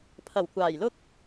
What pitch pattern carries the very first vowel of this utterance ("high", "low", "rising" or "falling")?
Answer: low